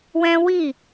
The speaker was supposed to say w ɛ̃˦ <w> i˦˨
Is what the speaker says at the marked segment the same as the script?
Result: yes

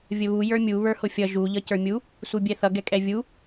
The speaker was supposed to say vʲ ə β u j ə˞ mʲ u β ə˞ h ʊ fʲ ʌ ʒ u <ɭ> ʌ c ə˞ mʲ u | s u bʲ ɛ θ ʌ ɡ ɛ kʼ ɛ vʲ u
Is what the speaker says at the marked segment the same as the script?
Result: no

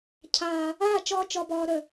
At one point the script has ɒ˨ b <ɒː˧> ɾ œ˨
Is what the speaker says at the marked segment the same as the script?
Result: no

